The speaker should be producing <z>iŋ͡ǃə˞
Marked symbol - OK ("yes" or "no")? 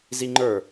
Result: yes